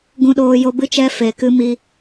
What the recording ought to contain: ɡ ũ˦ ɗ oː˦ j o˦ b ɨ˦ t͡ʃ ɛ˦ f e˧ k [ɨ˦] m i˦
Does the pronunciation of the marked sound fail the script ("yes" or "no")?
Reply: no